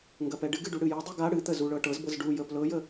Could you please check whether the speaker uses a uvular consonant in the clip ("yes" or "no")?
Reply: no